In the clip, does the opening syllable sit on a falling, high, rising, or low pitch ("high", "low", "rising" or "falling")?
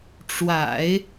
low